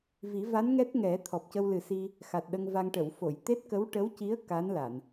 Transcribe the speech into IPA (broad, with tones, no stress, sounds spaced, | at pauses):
v i˨˩˦ v a˧˥ n ŋ ɛ˦˥ t̚ ŋ ɛ˨˩˦ t̪ʰ ɔ˨˩ p̚ c ə˧ w l ɨ˨˩ s i˧ | x a˨˩ t̚ ɗ ə˧ ŋ v a˧ ŋ ʈ ə˨˩˨ w f o˨˩˨ j t̪ e˦˥ t̚ k ə˧˥ w ʈ ə˧˥ w c i˧˥ ə̯ k a˧˥ n l a˨˩˨ n